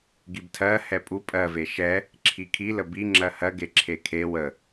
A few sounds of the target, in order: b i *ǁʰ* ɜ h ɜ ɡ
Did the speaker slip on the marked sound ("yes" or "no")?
yes